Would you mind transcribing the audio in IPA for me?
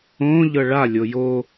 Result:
õ ʎ ɤ ɭ a lʲ o j o

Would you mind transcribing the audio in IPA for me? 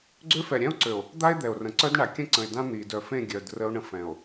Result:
ɡ͡ǀ ø˦ f ɛ˨ ɾʲ ɛ̃˦ o̯ ǀ ø˨ o̯ | d̪ a˦ e̯ d̪ ɛ˨ o̯ r ə̃˨ ǀ œ˦ d ɳ a˨ kʲ ə̃˦ ǀ ə̃˨ e̯ d ã˦ n̪ i˨ d œ˨ f ẽ˦˨ ɡʲ œ˨ d r ə˦ o̯ ɳ ə̃˦ f ɛ̃˨ o̯

